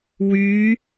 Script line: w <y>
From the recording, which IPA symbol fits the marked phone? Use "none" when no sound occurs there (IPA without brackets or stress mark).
y